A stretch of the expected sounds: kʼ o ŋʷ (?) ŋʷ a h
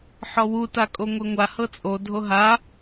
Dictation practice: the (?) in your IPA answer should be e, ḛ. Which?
e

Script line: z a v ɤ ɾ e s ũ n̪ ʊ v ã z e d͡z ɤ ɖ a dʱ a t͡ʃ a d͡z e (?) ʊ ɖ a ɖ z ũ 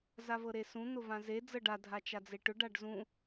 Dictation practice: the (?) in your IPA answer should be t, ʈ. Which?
ʈ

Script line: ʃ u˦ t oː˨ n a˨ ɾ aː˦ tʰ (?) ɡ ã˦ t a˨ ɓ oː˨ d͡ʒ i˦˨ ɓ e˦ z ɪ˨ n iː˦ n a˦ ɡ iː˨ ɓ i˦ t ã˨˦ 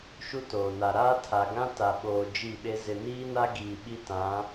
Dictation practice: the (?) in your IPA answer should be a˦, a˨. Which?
a˨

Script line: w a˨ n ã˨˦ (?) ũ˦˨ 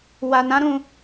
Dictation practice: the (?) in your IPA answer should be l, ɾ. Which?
ɾ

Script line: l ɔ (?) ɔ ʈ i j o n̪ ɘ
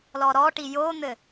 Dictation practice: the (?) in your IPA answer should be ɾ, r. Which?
ɾ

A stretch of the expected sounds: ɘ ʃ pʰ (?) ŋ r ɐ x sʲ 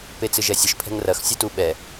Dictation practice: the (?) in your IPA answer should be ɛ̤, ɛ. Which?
ɛ̤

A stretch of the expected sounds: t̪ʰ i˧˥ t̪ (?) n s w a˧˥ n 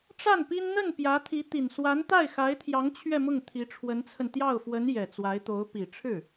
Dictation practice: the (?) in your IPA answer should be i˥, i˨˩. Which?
i˨˩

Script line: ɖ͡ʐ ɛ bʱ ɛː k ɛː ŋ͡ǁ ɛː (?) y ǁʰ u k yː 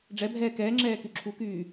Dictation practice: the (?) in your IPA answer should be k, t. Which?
k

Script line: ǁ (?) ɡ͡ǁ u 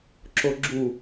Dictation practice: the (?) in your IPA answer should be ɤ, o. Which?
o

